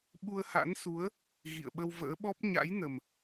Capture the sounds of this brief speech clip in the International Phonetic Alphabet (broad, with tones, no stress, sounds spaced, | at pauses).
ɓ u˧ ə̯ h a̰˧˥ n s u˨˦ ə̯ | ɣ ḭ˧˨ ə̯ ɓ ə˧ w v ə̰ː˧˥ ɓ ɔ˦˥ p̚ ɲ a̰˧˥ j n ə˨˩ m